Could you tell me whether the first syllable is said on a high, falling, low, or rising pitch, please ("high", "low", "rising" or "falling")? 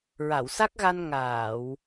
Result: low